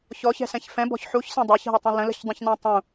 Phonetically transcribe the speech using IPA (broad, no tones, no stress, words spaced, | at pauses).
çɔçɛ̤sɛ̃ç fɛ̃bɔ̤ç ħuçsɛ̃ dˤeçɦətˤũ lə̃lə̤çdˤũçnũ tˤũ